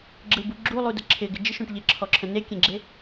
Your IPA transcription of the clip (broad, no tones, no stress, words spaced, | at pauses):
ɡ͡ǁɯbu ɡ͡ǁulˠudə ǁʰɪɡɪ d͡ʒɪʃõʈ ʎɪǁʰɔǁʰə̃ nekʲẽɡ͡ǁe